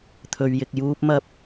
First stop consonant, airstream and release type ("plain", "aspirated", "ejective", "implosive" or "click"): aspirated